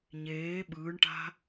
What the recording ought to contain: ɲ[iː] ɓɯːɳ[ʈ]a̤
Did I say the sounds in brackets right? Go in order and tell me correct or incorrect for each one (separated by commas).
incorrect, correct